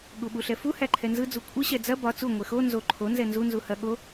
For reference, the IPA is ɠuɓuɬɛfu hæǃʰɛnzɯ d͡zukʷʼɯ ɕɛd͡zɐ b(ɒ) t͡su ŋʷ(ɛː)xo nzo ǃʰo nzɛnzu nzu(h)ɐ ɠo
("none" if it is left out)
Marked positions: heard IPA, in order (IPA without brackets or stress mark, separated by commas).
ɒ, ɛ, h